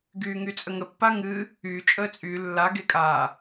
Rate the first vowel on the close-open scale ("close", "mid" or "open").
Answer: close